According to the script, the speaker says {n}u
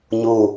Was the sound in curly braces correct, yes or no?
no